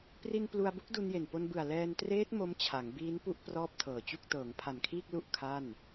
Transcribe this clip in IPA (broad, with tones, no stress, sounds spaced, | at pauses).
p r i˧ n p l u˧ a̯ b u˦˥ k̚ d u˧ n j e˨˩ n p o˧ n b ɯ˨˩ a̯ l ɛː˧ n t r eː˦˥ t̚ m o˦˥ m t͡ɕʰ a˩˦ ŋ b iː˦˥ n p u˥˩ ʔ p r ɔː˥˩ p̚ tʰ ɤː˨˩ t͡ɕ u˥˩ k̚ t ɤː˩˦ ŋ pʰ a˨˩ n kʰ iː˥˩ k̚ l u˥˩ ʔ kʰ a˥˩ n